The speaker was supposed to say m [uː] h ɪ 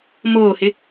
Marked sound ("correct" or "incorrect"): incorrect